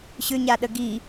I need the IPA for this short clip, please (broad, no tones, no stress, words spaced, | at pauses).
ɕʏɲaɗə ɡi